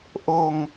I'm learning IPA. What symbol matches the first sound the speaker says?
ʔ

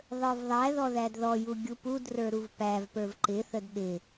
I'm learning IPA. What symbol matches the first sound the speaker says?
ðˤ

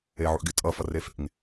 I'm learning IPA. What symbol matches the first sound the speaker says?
e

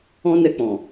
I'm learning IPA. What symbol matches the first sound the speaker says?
ɔ̃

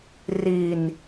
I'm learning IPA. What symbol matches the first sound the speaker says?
r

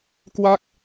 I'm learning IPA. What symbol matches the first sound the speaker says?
k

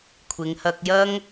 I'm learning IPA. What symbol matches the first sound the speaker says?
kʷʰ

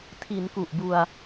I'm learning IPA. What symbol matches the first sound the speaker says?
tʰ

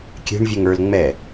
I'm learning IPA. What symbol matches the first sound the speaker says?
kʲ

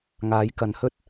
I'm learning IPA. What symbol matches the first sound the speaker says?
ŋ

